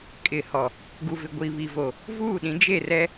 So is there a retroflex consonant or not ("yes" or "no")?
no